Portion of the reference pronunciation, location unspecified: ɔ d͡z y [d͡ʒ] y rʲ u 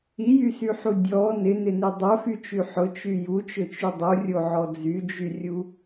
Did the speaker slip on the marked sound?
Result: no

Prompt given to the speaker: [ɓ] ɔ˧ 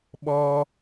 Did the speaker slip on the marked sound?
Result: no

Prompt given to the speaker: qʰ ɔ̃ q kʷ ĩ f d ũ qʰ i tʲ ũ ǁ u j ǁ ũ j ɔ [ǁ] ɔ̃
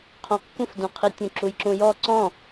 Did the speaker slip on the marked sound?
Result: yes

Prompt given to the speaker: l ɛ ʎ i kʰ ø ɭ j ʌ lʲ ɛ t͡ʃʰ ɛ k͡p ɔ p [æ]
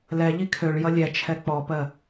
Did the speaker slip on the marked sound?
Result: yes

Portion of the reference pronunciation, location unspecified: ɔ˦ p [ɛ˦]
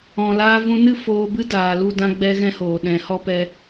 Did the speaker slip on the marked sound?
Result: no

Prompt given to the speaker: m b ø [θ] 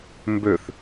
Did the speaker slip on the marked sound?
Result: no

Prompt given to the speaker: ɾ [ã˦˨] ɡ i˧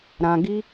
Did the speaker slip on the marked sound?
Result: yes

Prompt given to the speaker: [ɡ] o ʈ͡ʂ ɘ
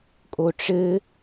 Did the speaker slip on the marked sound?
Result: yes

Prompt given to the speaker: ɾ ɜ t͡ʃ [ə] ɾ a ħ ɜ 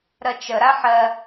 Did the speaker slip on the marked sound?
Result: no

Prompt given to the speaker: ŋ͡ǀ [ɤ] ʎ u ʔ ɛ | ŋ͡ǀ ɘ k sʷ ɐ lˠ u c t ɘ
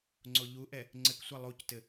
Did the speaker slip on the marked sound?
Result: yes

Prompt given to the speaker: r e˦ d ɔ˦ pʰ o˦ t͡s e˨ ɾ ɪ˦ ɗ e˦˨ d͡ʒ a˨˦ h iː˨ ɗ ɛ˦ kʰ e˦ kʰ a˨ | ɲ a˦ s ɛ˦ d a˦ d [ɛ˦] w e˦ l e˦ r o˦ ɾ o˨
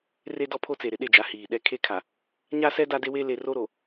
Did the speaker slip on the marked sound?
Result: yes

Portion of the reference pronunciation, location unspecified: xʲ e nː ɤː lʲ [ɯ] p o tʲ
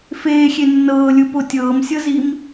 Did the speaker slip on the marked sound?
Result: no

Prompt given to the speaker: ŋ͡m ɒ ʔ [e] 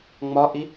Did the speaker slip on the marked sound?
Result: yes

